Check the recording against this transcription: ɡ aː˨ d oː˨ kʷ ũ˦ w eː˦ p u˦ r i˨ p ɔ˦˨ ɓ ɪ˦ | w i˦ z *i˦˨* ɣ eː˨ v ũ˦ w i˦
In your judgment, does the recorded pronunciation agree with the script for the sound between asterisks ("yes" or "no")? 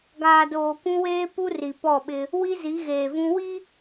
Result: no